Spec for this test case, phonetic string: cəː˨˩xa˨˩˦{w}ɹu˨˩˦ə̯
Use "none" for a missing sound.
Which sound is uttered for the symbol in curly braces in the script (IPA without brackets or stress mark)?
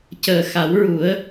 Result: w